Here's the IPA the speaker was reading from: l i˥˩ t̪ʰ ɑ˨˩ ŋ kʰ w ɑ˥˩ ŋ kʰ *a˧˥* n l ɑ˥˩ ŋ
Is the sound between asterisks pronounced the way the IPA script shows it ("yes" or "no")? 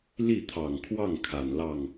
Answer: no